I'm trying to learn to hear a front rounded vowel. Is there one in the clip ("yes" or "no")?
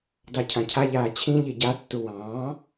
no